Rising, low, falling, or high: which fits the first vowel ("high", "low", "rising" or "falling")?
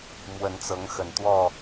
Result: rising